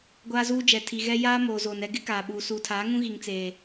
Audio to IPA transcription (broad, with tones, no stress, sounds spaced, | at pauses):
ɡʷ aː˦ z uː˦ d͡ʒ ɛ˨ tʰ i˨ ɣ ɛ˦ j aː˦ m oː˨ z oː˨ n ɛ˦ ɡ ɪ˦ k aː˨ ɓ uː˨ s uː˨ tʰ aː˨˦ ŋ ũ˦ ɣ i˨ ŋ t͡s eː˨